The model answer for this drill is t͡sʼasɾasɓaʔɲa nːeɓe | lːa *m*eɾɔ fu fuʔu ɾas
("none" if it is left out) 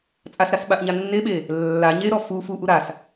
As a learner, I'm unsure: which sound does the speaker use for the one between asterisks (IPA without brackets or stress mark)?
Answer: ɲ